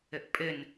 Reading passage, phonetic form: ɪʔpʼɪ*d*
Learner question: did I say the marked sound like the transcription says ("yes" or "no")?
no